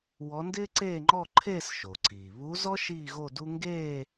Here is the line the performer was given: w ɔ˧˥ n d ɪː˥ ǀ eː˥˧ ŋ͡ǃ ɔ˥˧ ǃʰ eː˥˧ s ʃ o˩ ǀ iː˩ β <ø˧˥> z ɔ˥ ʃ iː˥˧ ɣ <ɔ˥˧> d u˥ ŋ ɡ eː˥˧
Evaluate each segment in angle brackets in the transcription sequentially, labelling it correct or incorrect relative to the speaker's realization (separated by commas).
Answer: incorrect, incorrect